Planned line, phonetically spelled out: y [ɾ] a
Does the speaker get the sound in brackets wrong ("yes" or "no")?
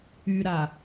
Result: no